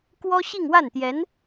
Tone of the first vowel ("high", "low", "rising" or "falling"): high